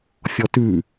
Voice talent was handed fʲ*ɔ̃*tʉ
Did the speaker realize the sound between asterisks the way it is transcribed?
no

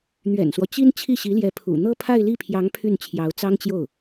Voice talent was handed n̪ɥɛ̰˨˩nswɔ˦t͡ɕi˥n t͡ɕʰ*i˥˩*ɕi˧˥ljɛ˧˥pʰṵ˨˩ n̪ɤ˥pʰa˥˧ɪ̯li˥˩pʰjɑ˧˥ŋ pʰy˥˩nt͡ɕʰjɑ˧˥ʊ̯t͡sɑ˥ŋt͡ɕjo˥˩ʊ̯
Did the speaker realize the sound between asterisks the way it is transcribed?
yes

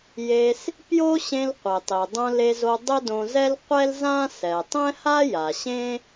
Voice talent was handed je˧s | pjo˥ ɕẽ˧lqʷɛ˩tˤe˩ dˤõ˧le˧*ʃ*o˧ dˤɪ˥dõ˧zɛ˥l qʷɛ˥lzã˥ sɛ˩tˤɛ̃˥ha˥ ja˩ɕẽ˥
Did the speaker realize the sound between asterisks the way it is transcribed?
no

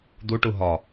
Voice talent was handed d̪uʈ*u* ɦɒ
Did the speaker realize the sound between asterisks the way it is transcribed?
yes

